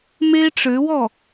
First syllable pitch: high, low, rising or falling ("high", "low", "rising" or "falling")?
high